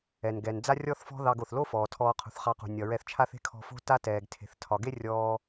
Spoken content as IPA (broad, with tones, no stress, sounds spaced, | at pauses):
ɛ˩ n ɡ ɛ˩ n d͡z a˥ rʲ ɔ˥ θ f ɔ̤˥ ð ɑ˧ ɡ o˩ θ l o˥ f ɔː˩ tʰ ɔː˧ qʰ ṳ˩ θ χ ɑ˧ q ṳ˩ nʲ ɒ˩ ɹ ɛ˧ θ t͡ʃʰ a˥ θ e̤˥ kʰ ɔ̤˧ f o̤˥ t a˥ t ɛː˩ ɡ tʰ e̤˩ θ tʰ ɒ˩ ɡ e˥ rʲ ɔː˧